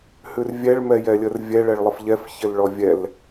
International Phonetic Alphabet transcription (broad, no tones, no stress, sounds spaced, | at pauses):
h ʉ r vʲ ɛ ɭ m ɛ j ɛ lʲ ə r vʲ ɛ ɭ ɛ ɭ lˠ ə f ʎ ɛ f ç ɘ l ɭ ɔ vʲ ɛ l